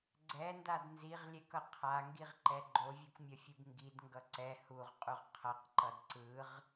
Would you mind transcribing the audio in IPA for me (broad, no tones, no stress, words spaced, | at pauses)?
ɡ͡ǀɛndad nziʁlʲɛkʌ qʰaŋɡiʁǃɛ ɡ͡ǃovʲukmʲʌfʲɯb ŋɡidŋɡʌ ǀɛ huʁqʼuʁ qʰʌqǃʌd ǀɯʁ